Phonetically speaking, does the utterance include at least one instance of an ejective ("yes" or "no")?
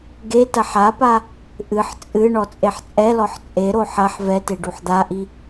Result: yes